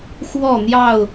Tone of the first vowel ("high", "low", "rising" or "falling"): falling